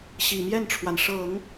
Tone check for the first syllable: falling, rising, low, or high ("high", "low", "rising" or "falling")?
low